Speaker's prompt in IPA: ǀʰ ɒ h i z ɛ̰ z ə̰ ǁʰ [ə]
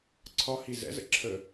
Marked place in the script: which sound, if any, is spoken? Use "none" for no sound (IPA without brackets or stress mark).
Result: ə